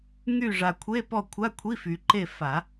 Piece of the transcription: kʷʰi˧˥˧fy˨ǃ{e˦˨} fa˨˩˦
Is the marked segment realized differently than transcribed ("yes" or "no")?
no